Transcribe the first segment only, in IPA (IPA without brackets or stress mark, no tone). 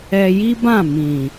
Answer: ɛ